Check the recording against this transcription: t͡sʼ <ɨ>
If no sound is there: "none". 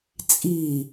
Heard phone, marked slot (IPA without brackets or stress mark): i